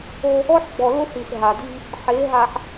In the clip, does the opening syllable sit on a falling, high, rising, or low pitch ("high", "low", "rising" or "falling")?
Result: high